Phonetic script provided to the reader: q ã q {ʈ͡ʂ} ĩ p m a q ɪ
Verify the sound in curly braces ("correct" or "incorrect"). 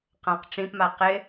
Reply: correct